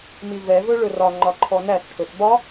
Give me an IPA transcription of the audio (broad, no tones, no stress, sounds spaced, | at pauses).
m i v ɛ v ɵ ɭ ɵ r ɒ ŋ͡ǃ ɒ ǃʰ ɔ n æ θ ʈʰ ɵ θ b ɒ